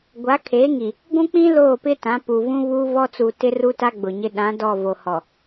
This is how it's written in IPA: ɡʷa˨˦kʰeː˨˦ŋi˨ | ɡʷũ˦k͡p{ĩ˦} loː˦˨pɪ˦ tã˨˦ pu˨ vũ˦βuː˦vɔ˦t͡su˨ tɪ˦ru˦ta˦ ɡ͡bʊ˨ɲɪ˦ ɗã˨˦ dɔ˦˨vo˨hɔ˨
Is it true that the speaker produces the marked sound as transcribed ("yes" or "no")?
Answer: yes